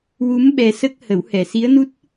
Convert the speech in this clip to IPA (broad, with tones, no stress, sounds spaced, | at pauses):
w u˧˥ m ɓ ɛ˧ s ə˦˥ k̚ h ə˨˩˦ w h ɛ˨˩ s i˧˥ ə̯ n u˦˥ t̚